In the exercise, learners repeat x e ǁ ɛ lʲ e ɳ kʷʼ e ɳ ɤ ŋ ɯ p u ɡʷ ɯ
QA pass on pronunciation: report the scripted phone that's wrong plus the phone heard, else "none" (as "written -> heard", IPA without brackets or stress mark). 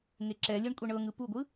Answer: x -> ŋ